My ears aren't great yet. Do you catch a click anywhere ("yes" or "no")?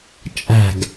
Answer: no